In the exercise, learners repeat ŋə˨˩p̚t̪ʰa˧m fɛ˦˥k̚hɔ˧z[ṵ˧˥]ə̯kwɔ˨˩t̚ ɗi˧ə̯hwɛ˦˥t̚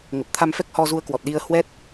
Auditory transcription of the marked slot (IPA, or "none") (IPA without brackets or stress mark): u˧